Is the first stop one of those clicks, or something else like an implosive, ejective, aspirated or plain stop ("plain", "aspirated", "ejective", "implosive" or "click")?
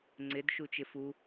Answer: click